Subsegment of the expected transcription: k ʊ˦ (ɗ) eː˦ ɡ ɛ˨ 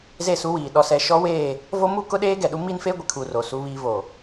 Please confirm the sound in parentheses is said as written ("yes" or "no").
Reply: yes